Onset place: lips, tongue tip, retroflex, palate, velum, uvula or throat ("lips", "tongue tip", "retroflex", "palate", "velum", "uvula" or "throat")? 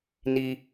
tongue tip